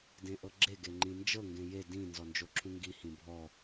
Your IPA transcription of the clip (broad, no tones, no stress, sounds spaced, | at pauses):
d ẽ ʔ ɤ ɡ͡ǁ e ɡ e ŋ͡ǃ ĩ n d͡ʒ ɤ ŋ ɡ ẽ j e d ĩ n z ɔ n d͡ʒ o ǁʰ ũ ŋ ɡ i h ĩ bʱ ɔ